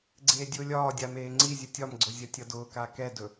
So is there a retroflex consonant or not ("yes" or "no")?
no